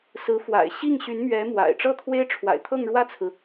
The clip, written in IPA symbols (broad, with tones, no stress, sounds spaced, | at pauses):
s ɹ̩˧˥ f w a̰˨˩ ɪ̯ ɕ i˥˩ ŋ ɕ y˧˥ n m ɥ ɛ˧˥ m w a̰˨˩ ɪ̯ ʈ͡ʂ ɤ˥˩ t̪ʰ w e˥ ɪ̯ ʈ͡ʂʰ w a̰˨˩ ɪ̯ t̪ʰ ɤ˥˧ ŋ ɻ w ä˥˩ t͡sʰ ɹ̩˩